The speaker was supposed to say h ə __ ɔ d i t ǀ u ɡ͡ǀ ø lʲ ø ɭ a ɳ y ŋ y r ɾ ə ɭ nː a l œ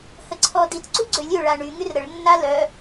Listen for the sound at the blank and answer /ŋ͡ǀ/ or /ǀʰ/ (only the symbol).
ǀʰ